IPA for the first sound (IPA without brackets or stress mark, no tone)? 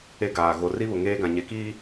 e